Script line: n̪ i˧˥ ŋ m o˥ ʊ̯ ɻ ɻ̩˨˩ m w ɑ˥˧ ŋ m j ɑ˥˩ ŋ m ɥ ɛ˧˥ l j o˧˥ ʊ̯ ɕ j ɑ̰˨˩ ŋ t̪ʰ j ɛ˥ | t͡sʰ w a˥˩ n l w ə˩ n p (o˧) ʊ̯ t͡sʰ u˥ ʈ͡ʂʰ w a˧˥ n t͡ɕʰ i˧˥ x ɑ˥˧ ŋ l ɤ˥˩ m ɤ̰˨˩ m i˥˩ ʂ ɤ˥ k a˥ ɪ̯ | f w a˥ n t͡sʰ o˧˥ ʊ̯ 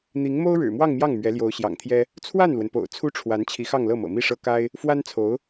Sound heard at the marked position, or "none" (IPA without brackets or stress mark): o̰˨˩